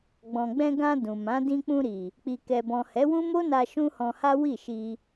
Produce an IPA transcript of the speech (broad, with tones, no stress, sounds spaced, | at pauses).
ɡ͡b ɔ̃˨ ɡ͡b ɛ̃˧ ɡ ã˧ d ũ˨ m ã˨˦ d ĩ˧ k͡p ũ˧ ɾ i˨ | k͡p i˨ k ɛ˨ b ɔ̃˨ h ɛ˨˦ w ũ˦ m o˦ n a˧ ʃ ũ˦ h ɔ̃˧ h a˦ w i˦˨ ʃ i˧